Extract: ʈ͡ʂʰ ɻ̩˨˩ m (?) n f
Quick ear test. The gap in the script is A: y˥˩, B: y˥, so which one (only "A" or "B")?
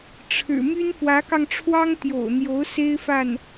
B